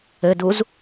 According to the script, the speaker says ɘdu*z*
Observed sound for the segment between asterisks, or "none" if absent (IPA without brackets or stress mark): z